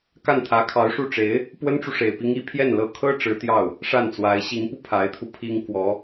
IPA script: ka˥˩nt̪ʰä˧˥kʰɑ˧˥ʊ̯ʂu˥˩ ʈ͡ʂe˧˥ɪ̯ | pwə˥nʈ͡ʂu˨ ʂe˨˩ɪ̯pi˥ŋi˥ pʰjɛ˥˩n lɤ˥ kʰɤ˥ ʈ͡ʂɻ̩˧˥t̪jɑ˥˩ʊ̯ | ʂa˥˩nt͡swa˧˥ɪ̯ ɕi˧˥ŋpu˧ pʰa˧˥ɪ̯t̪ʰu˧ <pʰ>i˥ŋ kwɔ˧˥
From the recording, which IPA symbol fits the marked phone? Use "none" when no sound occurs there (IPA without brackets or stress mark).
pʰ